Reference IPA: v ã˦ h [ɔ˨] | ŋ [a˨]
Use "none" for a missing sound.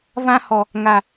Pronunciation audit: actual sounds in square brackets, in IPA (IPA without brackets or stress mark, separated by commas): ɔ˨, a˨